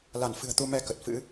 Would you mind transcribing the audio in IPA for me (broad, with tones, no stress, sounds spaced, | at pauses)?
l a˧˩ n f ɨ̤˨˩ ə̯ t̪ u˧ m ɛ˧ k ə˨˩ t̚ f ɨ̰˧˥